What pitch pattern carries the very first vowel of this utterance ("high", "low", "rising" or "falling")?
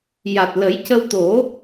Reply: low